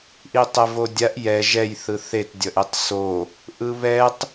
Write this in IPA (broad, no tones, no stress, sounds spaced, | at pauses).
ʔ i tˤ ɛ v o dʲ a ʔ j ɛ ʒ ɛ j θ ɯ θ e t dʲ ʌ ʔ e tˤ s o | ʔ ɯ β ɛ tˤ